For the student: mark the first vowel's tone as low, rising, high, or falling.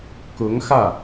rising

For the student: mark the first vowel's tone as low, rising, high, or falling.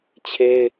high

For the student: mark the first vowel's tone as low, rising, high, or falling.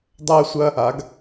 high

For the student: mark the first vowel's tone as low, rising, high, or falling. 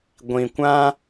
low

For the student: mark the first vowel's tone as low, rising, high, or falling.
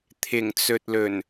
low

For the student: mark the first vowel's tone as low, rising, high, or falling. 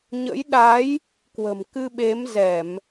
rising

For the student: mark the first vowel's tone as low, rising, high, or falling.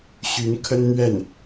rising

